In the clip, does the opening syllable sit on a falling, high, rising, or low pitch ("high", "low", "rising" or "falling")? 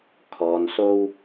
low